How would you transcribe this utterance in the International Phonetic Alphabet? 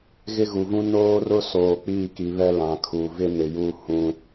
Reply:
ɣ ɪ˦ ɣ u˨ v ũ˦ n oː˦ r ʊ˦ s oː˨ k͡p iː˦˨ k i˨ β ɛ˦ l ã˨ kʰ uː˨ v ɪ˦ n ɪ˨ j uː˦ h ũ˦

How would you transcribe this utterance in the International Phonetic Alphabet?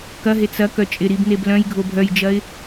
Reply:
k ɐ ɦ e t͡s ɐ k œ t͡ʃʼ ɪ ɾ i b n e b l œ̃ j ɡʱ o bʱ œ j d͡ʒ ɐ ɪ̯

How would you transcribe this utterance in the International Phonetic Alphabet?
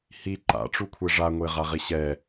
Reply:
h i ǃ a̰ ʈ͡ʂ u kʷʰ e ʐ a ŋʷ e ʁ a ʁ i ɕ ɛ

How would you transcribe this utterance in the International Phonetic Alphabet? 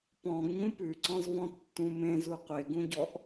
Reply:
p ɔ̃ ɡ ɲ ũ p ʉ ǀ ɔ̃ z v ɔ̃ tː ũ m ẽ z u qʷ e ɡ ũ ɟ ɔ ʔ

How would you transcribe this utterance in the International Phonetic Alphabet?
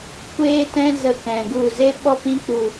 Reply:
kʷ eː˦ t ɛ̃˦ z ə˧ k ɛ̃˨ ɡ u˦˨ z e˦ ɓ ɔ˦ p ĩ˧ k͡p u˨

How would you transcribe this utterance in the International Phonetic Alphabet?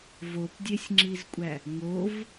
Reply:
v o p dʲ e sʲ ŋ͡ǁ i z kʷʼ æ | ŋ o v

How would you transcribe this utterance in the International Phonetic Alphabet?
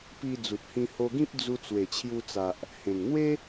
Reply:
p i˧ d͡z u˨ t̚ h ĩ˧ h o˧ ɡ ĩ˦ p̚ d͡z u˧ t͡s w e˨˩ t͡ɕʰ j u˧ t͡s a˨ ʔ | h ẽ˨˩ ŋ n̪ w e˦

